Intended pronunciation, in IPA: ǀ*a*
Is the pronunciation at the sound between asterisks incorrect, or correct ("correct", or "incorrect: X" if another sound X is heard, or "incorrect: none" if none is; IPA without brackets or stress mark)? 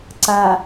correct